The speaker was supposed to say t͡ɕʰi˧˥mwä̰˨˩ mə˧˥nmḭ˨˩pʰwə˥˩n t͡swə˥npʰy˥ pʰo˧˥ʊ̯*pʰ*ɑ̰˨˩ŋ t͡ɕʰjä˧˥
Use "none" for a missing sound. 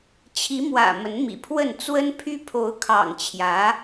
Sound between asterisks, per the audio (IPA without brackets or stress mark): kʰ